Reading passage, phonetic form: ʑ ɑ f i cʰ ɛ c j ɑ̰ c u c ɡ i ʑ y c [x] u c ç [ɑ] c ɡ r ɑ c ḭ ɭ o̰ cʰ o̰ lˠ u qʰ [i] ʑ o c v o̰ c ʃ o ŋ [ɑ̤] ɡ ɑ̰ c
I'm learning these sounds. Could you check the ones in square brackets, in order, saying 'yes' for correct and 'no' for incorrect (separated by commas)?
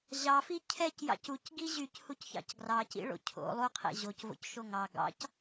no, no, no, no